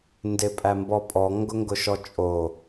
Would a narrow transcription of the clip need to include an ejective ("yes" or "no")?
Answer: yes